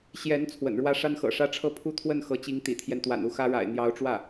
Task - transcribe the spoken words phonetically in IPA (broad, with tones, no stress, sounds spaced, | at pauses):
ɕ j ɛ˧˥ n t͡sʰ w ə̰˨˩ n ɻ w ä˥ ʂ a˥ n x ɤ̰˨˩ ʂ ä˥ ʈ͡ʂʰ ɤ˥ pʰ u˥˧ t̪ʰ w ə˥˩ n x ɤ˧˥ t͡ɕ i˧˥ ŋ t̪ ḭ˨˩ t̪ʰ j ɛ˦ n t̪ w a̰˨˩ n u˥˩ x ä˥ ɻ a̰˨˩ ɪ̯ n̪ j ɑ˧˥ ʊ̯ ʈ͡ʂ w ä˥˩